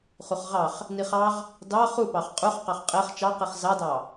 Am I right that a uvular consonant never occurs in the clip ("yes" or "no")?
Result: no